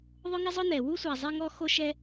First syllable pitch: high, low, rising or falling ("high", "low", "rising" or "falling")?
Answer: high